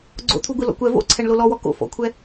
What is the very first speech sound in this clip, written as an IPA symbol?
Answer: ɡ͡ǀ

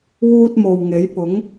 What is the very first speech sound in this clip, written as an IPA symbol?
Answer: w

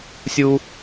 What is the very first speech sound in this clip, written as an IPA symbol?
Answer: sʲ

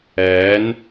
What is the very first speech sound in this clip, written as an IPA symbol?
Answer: ɛː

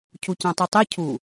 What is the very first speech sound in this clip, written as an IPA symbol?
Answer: cʰ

